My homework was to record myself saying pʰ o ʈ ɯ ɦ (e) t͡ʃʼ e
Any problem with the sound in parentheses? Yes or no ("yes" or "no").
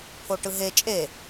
no